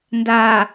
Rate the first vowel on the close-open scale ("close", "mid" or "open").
open